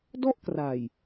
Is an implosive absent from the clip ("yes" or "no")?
yes